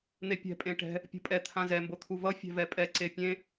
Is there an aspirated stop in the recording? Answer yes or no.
yes